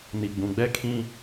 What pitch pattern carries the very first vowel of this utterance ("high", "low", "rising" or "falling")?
low